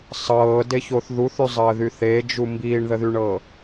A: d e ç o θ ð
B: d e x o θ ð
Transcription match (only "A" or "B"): A